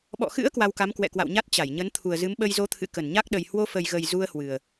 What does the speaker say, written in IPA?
ɓɔ̰˧˨xɨ̰˧˥ə̯ kwa˧wka˨˦m kwɛ̰˧˨kwa̰˧˨wɲa˦˥t̚ t͡ɕa˧˩jɲə˨˦n t̪ʰu˨˩ə̯zɨ˨˦m ɓə˧jzo˨˦t̪ʰɨ̰˧˨ kə˧˩nɲa˦˥k̚ɗə˨˩j hwo˧fə˨˩jɣə˨˩j zu˧ə̯ hwɨ˨˩ə̯

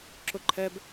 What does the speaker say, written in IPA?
ǁʊǃʰɛb

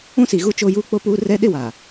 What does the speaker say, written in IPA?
ũ˦si˨ɣu˦ t͡ʃoː˦juː˦ k͡po˦puː˦ rɛ˦ɗɪ˦wa˨

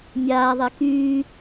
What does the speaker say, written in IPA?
mʲaːðˤe kyː

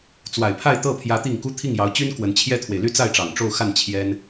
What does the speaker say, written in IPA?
t͡swa˨˩ɪ̯pʰa˥˧ɪ̯t̪ɤ˥˩pʰjä˧˥ t̪i˥˩ŋku˥ t̪ʰi˥˩ŋjɑ˧˥ʊ̯t͡ɕy˥n kwə˧˥nt͡ɕʰjɛ˥t̪ʰwe˨ɪ̯ ly˥˧t͡sa˥˩ɪ̯ʈ͡ʂɑ˨˩ŋ ʈ͡ʂo˥˧ʊ̯xa˥˩n t͡ɕʰjɛ˥n

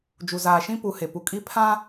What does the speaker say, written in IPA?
d͡ʒu˨zaː˨ ʃĩ˦pu˨ he˨pu˨ kʼi˦pʰã˦

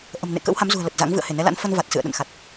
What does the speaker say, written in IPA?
ʔə̤˨˩mnḛ˧˨ kə̰ː˧˥wha˨˦mzṳ˨˩ə̯ lə˨˩t̚za̰˧˥ŋ vɨ̰˧˨ə̯he˧˩nɛ˨˦la̰˧˥n fə˧n va˨˩t̚ sɨ̰˧˨ə̯ɗə̰˧˨nxa˨˩t̚

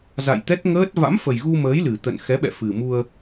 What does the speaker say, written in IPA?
za̰˧˨jt̪ɛ˦˥t̚ŋəː˦˥t̚ va̰˧˥mfə˨˩jɣu˧məː˨˦j lɨ˨˩t̪ə̰˧˨n xɛ˨˦ɓɛ̰˧˨fɨ˨˩mu˧ə̯

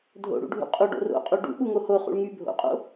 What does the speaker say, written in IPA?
dʱo̰ɽṵ ɖʱṵqʼuɖo̰ ro̰qʼu ɖṵ ɓuŋoho χṵɭŋy bʱo̰qʼo̰

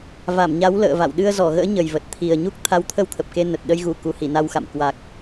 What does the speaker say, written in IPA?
va˧˩mɲa˨˦w lə̰ː˧˨va̰˧˨wɗɨ˧ə̯ zɔ˧˩ɣə̰ː˧˥ ɲə˨˩jvə˨˩t̚t̪ʰi˨˩ə̯ ɲu˦˥k̚t̪ʰa˨˦wt̪ʰə˧w t̪ʰə˨˩p̚ke˧ nə˨˩t̚ ɗə˧jɣu˧˩ ku˨˩hi˧˩na˧wxa̰˧˨m kwa˨˩k̚

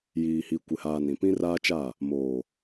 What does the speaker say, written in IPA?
jiː˨hi˨ kʷɪ˨haː˨ nĩ˨ pĩ˦raː˦t͡ʃa˦˨ | moː˨

